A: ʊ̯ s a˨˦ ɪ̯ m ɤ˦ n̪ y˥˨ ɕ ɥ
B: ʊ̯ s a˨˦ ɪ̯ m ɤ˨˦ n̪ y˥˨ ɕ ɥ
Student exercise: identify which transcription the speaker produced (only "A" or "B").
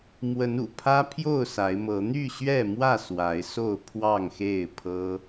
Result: B